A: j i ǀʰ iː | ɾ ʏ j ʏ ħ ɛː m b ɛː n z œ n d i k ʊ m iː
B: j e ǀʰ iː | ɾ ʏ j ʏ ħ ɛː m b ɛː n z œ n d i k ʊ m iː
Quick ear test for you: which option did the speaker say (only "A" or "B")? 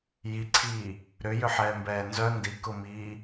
A